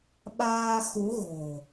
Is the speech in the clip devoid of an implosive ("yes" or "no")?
no